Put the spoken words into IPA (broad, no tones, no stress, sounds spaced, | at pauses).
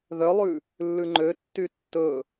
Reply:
ð œ lˠ ʉ | lː ʉ ŋ͡ǃ ø tː y tː ɵ